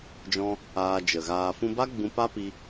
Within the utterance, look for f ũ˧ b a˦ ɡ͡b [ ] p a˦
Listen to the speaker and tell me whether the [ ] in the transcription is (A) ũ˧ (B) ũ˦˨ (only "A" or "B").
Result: A